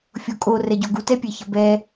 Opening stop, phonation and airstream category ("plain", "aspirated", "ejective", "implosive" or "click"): ejective